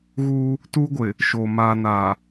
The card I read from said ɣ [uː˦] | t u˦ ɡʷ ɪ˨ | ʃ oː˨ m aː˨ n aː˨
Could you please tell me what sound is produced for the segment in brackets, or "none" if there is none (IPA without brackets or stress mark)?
uː˦